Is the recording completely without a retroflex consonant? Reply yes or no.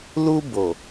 yes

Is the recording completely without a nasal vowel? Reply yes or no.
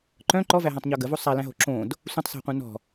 no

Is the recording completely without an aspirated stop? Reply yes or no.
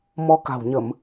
yes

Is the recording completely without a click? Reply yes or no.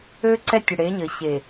no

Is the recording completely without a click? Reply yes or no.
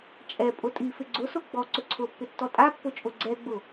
no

